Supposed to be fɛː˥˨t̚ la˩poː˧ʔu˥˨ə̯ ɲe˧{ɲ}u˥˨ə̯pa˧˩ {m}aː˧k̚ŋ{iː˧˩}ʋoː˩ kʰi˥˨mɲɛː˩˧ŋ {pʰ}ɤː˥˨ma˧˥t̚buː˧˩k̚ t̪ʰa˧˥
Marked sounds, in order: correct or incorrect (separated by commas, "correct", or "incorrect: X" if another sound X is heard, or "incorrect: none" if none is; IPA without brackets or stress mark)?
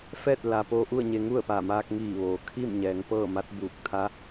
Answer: incorrect: ŋ, correct, correct, incorrect: p